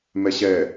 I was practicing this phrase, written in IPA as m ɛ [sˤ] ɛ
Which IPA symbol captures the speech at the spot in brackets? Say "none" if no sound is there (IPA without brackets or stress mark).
ɕ